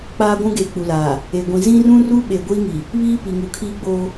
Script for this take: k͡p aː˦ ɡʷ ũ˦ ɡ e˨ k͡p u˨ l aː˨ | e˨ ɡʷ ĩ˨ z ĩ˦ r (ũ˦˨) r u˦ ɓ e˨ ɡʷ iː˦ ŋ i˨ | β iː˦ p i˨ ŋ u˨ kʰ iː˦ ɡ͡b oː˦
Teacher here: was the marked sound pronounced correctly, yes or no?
no